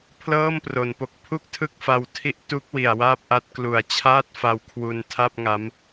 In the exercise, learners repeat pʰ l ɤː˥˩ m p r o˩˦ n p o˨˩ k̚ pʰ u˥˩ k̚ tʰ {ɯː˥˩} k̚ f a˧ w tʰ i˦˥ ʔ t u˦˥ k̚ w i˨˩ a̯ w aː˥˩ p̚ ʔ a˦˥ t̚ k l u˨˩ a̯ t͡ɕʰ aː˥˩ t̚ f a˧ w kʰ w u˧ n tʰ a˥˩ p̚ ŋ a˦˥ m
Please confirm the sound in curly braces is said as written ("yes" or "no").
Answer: no